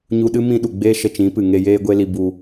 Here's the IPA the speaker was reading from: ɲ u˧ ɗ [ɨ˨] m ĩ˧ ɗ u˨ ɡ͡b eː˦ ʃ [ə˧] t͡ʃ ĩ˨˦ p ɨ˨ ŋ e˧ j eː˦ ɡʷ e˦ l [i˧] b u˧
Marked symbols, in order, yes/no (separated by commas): no, yes, yes